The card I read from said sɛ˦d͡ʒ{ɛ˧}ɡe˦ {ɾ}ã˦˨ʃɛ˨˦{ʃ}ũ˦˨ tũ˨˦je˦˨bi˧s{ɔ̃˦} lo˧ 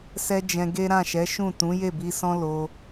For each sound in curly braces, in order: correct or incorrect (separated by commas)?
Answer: incorrect, correct, correct, correct